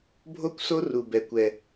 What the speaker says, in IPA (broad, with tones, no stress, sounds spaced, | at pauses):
bʱ o˦ kʷ s o˦ r u˧ b ɛ˧ kʷ ɛ˧